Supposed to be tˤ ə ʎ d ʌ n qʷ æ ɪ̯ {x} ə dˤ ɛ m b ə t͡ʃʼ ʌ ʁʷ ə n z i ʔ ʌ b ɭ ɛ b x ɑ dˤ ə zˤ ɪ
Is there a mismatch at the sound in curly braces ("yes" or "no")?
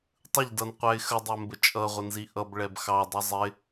no